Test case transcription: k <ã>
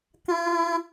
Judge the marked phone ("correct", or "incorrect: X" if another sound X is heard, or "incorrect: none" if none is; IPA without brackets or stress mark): correct